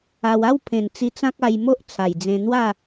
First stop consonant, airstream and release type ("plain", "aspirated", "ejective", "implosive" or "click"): aspirated